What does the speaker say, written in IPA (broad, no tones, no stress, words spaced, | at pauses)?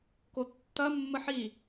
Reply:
kotːɐ mːəħi